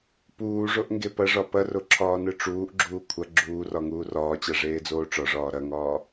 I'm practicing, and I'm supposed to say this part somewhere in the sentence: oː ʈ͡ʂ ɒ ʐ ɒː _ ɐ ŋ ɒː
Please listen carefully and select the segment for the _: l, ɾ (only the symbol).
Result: ɾ